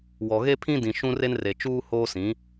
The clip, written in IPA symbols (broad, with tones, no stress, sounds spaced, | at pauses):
w ɔ˨ ɣ e˦ pʰ ĩ˦ d ĩ˨ ʃ ũ˦ r e˦ n r e˨ t͡ʃ uː˦ h oː˦ s ĩ˨˦